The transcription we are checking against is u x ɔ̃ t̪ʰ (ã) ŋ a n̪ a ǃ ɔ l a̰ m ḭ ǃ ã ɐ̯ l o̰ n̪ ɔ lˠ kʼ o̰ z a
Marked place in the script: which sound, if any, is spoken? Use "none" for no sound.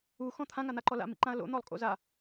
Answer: ã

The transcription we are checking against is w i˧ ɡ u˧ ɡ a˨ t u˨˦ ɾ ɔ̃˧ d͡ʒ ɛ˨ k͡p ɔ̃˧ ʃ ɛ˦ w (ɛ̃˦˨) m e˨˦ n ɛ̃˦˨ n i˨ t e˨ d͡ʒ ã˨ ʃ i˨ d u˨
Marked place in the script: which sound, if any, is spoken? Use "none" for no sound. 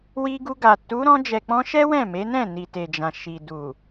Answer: ɛ̃˦˨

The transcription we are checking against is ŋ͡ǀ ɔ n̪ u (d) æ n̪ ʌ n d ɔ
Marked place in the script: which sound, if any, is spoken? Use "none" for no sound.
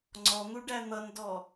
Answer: ɖ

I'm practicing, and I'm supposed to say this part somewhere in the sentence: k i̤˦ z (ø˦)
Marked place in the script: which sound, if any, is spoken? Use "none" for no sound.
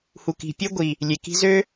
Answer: ø˦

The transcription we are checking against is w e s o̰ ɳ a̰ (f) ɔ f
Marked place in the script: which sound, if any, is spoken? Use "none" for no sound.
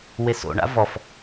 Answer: v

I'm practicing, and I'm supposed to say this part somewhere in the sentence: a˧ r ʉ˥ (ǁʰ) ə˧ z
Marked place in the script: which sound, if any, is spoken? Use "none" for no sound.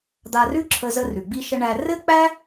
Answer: ǁʰ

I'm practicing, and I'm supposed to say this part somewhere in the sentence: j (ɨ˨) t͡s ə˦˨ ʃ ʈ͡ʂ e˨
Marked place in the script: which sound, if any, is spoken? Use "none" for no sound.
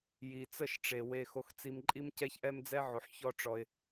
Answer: i˨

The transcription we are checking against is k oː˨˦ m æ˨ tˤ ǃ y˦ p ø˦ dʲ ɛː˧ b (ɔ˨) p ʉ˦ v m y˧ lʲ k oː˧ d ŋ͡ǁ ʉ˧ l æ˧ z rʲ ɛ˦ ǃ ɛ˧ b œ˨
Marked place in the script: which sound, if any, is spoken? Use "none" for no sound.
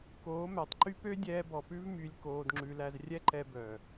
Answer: ɔ˨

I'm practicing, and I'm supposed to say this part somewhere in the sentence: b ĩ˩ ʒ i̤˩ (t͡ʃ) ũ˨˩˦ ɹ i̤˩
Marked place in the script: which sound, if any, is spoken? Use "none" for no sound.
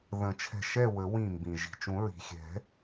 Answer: t͡ʃ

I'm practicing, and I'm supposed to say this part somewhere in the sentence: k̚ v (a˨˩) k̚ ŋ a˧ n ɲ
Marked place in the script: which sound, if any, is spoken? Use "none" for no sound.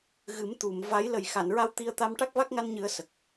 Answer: a˦˥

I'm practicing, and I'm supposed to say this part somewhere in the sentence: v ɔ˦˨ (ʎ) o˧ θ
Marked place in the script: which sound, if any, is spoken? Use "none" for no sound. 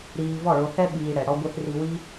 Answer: ɭ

